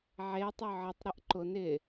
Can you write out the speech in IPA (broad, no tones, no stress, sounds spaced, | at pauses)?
ʕ e tˤ ø ʕ ə tˤ ɾ ə ʔ ǃ ʊ n ɪ